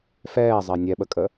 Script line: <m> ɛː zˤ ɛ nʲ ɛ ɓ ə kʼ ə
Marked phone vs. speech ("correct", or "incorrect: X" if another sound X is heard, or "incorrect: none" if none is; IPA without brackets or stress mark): incorrect: f